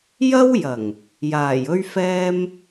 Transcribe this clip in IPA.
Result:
j ɐ˥ w j ɐ˨˩ ŋ | j aː˨˩ j ɵ˥ ɥ f ɛː˥ m

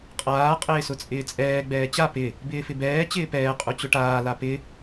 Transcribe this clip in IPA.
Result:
qʼ aː qʼ ɪː s ʊ t͡sʼ ɪː t͡sʼ ɛː ɡ͡b ɛː t͡ɕ a p ɪ | b ɪː f ɪ b ɛː t͡ɕ ɪː p ɛː qʼ u t͡ɕ ʊ ʈ aː l a p ɪ

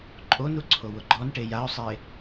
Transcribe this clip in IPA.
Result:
ǃʼ o n u ǀʰ o w ʊ ɡ͡ǃ ɔ n ʈ e j a ʊ̯ sˤ e

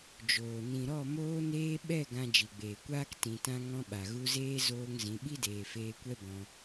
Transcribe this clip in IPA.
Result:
d͡ʒ oː˨ n ĩ˨ ɾ ɔ˦˨ m oː˧ n eː˧ ɓ ɛ˦˨ ɡ ã˧ d͡ʒ i˨ ɡ͡b eː˨ kʷ aː˦ k t ĩ˨ t ã˧ ŋ ɔ̃˧ ɓ a˨ ɣ u˧ z eː˦ z oː˧ ŋ z ĩ˨˦ ɓ i˦ d eː˨ f eː˧ kʷ ɛ˦ b ɔ̃˧

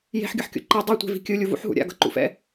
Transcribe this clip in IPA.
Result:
j e̤ ħ ɡʲ ʌ ħ kʲ o̰ ǃ i dˤ a tʷ e̤ v i̤ kʲ ɯ lʲ u v ṵ ħ ɦ ṵ ɾʲ a̰ ɡ ʌ ǃ ṵ f ɛ̰

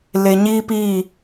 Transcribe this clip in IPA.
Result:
l e˨ ɲ i˦ p i˦˨

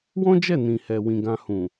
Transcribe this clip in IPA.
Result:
w ɔ̃˦ d͡ʒ ɛ˦˨ n ĩ˨ h ɛ˨ w ĩ˨ ɡ ã˧ h ũ˨

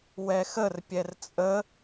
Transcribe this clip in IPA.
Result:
w ɛ x ə r pʲ ɛ r t͡sʼ ə

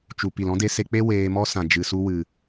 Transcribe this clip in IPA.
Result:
t͡ʃ u˨ p i˨ l ɔ̃˦ d e˧ s e˧ k͡p e˦ w eː˧ m ɔ˦ s ã˨ d͡ʒ ɨ˨ s u˧ w ɨ˨

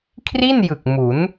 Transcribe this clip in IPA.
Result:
kʰ r i˥˩ n j ɯ˨˩ k̚ m u˩˦ n

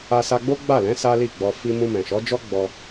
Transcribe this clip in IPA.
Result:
a˧ s a˧ ɡ͡b o˦ ɡ͡b a˦˨ l ɛ̃˨˦ s a˦ l i˦˨ ɡ͡b ɔ˧ f i˧ m ũ˧ m ɛ̃˨ ʃ ɔ˨˦ d͡ʒ ɔ˦ ɡ͡b ɔ˧

